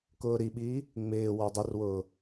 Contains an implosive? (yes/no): yes